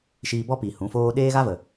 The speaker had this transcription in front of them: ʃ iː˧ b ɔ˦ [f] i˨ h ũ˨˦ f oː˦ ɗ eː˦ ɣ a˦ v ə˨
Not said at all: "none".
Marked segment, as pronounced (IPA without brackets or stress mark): p